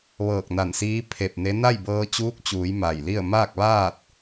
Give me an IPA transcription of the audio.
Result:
ʋ ɤː˧˩ k̚ n a˧˩ n s iː˧˥ pʰ e˧˩ p̚ n e˧˥ n a˥˨ j b ɤː˧ t͡ɕ uː˧˥ k̚ t͡ɕ uː˩˧ j m a˧˩ j l i˥˨ ə̯ m aː˥˨ k̚ ʋ aː˥˨ t̚

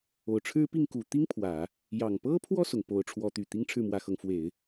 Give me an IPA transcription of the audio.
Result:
o˨˩ ʊ̯ ʈ͡ʂʰ ɻ̩˥ p i˥˩ ŋ k u˨˩ t̪ i˥ ŋ pʰ w ä˨˩˦ | j ɑ˨˩ ŋ p ɤ˥ pʰ w ɔ˥˩ s ʊ˩ ŋ p o˧˥ ʊ̯ ʈ͡ʂʰ w ɔ˧˥ t̪ y˨˩ t̪ i˥ ŋ ʈ͡ʂʰ ɻ̩˥˩ m w ä˧˥ x ɤ˧˥ ŋ f w e˨˩˦ ɪ̯

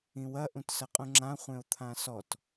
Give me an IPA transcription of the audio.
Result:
ĩ w ɐ ʔ ũ t s ɐ qʼ ũ ŋ͡ǁ ã χʷ ẽ o̯ t̪ʰ ã s ɔ t

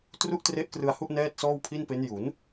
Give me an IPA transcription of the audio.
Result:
t r u˥˩ ʔ t r e˦˥ ʔ k r ɯ˧ a̯ h u˥˩ ʔ n ɛː˥˩ t̚ s ɔː˥˩ w pʰ i˥˩ n p e˦˥ n j u˩˦ n

